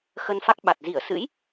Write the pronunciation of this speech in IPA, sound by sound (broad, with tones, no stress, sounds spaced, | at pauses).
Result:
x ə˧ n f a˦˥ k̚ ɓ a˨˩ t̚ z i˧˩ ə̯ s ɨ̰˧˥ j